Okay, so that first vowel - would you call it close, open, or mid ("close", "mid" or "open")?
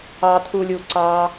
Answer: open